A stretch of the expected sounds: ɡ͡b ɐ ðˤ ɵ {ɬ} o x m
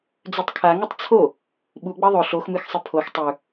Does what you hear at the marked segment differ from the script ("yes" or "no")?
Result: no